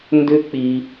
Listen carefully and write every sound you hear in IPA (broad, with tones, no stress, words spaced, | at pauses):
ndʏ˥k͡pi˧